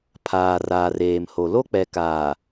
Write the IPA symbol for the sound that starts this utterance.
pʰ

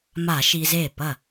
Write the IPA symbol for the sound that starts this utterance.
m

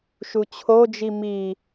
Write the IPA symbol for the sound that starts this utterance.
ʃ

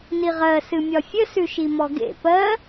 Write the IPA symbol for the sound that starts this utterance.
n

